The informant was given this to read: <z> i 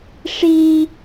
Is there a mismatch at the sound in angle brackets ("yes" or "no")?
yes